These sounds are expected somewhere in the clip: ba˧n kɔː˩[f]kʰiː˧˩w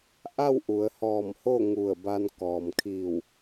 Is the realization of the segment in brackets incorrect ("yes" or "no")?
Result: yes